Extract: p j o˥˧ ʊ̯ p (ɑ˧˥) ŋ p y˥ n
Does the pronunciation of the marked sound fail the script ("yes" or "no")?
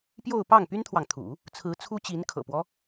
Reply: yes